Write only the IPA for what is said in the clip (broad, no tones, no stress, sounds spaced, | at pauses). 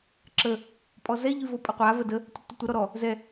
ǁ ə | pʼ ɔ z ɛ ʎ y v o pʼ ə qʷ a v ə d ə | tʷ ə tː o tʷ ə ɾ ɔ ɾ ɔ | z ɛ